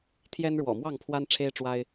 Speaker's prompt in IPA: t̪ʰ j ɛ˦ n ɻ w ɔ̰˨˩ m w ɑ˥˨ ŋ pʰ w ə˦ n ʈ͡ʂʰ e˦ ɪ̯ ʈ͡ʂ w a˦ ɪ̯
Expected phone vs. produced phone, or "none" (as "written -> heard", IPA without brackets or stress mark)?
ə˦ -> a˦